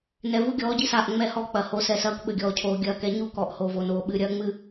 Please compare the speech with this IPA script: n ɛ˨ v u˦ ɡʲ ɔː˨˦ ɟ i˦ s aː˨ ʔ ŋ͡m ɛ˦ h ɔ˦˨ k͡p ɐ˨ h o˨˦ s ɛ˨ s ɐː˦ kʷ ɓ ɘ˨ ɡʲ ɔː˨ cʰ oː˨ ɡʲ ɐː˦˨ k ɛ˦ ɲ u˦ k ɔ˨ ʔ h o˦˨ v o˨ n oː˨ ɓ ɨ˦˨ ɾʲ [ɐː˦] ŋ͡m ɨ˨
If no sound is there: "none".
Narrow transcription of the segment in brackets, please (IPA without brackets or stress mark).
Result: ɐː˦